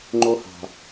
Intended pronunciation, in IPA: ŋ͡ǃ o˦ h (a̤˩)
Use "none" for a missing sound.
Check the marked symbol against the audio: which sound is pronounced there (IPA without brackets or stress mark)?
a̤˩